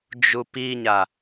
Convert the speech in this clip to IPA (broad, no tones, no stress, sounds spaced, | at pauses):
d͡ʒ u p i ɲ a